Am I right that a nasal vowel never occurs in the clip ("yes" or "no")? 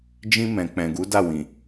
no